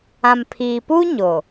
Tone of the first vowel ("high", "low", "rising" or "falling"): low